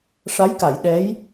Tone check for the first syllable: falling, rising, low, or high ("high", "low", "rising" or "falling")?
rising